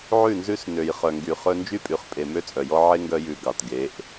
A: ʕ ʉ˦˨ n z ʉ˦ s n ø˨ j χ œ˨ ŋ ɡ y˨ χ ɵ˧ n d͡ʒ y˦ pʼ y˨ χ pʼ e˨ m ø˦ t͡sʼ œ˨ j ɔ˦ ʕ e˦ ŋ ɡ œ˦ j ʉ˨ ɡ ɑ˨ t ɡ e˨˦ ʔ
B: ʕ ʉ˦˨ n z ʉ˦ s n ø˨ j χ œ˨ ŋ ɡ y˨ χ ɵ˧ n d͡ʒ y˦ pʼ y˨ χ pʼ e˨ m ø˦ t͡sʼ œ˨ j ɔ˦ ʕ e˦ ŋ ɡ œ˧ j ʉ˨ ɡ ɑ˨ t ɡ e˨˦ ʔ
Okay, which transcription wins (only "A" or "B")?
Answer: B